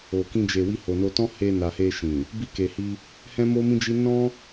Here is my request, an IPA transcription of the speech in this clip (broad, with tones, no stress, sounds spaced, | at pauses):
o˨ k ĩ˧ d͡ʒ e˨ w i˧ h o˨ n o˧ t ɔ̃˦ h e˧ n a˨ h e˧ ʃ ĩ˨ | b i˧ k e˨ h i˧ | h ɛ̃˦ m o˦ m ĩ˦ d͡ʒ i˦ n ɔ̃˦